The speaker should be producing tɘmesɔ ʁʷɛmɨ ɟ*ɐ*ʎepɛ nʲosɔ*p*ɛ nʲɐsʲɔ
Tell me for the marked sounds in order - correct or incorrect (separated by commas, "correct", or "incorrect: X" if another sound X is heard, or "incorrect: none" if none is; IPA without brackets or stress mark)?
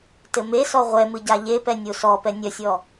incorrect: a, correct